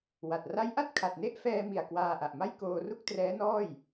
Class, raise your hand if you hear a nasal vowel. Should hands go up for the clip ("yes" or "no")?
no